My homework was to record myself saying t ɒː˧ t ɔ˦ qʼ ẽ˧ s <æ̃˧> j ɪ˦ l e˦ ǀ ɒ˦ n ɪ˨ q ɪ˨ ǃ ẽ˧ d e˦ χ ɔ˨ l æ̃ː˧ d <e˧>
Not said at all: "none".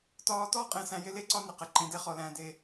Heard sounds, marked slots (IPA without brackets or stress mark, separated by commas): æ̃˧, e˧